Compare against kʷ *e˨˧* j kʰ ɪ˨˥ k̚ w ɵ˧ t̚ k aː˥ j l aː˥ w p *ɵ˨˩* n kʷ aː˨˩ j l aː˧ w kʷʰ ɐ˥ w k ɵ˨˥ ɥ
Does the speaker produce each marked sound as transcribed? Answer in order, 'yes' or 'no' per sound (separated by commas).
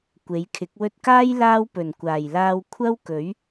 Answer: yes, yes